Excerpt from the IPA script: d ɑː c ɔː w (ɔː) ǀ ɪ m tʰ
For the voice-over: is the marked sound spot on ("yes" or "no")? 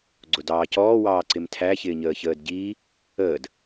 no